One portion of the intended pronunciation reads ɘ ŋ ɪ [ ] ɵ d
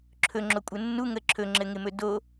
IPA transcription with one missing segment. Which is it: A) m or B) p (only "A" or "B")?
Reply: A